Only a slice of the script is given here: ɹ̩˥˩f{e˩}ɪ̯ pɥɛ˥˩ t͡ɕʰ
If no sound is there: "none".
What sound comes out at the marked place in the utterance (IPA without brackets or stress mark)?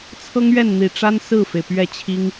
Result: e˩